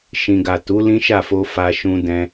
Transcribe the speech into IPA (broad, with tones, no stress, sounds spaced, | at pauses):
ʃ ĩ˨ ɡ a˨ t u˨˦ l ĩ˦ ʃ a˦˨ f o˧ f a˧ ʃ ũ˧ d ɛ̃˧